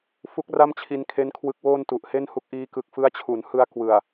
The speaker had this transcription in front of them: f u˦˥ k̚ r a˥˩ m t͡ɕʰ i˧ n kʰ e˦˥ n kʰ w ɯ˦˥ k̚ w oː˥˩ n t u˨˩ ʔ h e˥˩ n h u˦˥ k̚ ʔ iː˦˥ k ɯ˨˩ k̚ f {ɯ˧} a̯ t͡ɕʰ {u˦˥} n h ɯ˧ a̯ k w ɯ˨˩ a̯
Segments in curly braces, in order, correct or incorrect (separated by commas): incorrect, incorrect